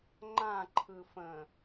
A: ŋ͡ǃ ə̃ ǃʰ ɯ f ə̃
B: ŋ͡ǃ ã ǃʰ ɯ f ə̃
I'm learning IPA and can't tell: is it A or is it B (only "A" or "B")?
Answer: B